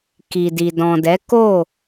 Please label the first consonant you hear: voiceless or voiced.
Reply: voiceless